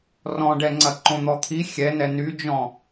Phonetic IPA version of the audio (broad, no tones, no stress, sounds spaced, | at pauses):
r ɔ̃ ɖ ɛ ŋ͡ǀ ɐ ǃ õ n̪ ɔ t̪ʰ i xʲ ɛ n ɛ n y d͡ʒ ɔ̃